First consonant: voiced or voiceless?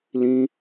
voiced